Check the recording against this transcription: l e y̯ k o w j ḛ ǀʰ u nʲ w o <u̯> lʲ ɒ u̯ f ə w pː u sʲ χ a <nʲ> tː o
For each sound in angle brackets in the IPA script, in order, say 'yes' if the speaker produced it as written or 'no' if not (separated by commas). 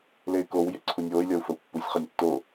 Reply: no, yes